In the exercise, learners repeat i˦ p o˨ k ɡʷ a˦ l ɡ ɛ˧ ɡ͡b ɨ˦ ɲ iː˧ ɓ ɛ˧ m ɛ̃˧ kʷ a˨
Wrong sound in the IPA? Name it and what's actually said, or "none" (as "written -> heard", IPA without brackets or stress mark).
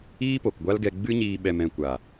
i˦ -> iː˦